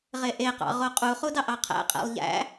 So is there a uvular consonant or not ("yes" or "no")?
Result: yes